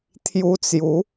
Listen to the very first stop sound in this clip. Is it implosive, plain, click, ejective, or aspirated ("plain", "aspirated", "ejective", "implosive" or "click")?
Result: aspirated